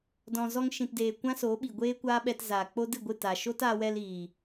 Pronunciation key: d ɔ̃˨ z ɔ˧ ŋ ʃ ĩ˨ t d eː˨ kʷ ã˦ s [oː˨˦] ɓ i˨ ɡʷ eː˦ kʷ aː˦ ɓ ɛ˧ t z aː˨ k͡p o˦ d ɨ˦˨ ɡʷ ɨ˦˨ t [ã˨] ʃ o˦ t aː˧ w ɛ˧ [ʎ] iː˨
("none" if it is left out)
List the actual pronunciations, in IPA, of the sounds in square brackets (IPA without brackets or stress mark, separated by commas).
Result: oː˨˦, a˨, l